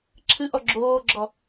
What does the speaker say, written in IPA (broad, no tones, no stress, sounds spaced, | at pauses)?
ǁʰ ɨ ʔ ɔ ɡ͡ǁ oː ɡ͡ǁ ɔ